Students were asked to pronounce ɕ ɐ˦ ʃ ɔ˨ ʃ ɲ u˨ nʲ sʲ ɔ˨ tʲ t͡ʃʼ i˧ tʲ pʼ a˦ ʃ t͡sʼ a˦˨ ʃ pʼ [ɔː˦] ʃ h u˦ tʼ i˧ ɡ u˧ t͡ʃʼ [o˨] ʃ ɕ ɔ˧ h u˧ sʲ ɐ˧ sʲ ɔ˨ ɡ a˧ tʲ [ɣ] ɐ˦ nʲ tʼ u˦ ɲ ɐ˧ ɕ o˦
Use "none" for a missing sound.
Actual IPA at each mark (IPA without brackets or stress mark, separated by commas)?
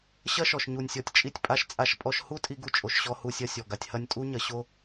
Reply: ɔ˦, o˨, h